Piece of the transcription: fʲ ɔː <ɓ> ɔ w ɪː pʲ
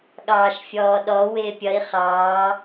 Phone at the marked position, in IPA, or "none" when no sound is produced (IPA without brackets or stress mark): ɗ